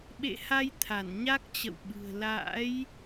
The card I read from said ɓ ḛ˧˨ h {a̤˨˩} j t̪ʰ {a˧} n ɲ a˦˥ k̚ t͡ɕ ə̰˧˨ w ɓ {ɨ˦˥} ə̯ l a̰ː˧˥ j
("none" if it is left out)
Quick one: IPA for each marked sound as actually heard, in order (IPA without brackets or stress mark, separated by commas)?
a˧, a˧˩, ɨ̤˨˩